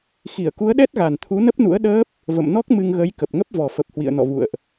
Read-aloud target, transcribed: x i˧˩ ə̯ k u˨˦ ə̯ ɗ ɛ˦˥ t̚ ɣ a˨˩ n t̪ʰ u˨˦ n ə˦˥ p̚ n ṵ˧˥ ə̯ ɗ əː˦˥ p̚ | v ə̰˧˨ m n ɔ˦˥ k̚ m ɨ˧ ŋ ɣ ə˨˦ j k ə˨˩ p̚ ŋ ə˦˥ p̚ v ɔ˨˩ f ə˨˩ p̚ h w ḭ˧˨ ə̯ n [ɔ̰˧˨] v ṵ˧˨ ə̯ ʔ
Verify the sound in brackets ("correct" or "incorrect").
correct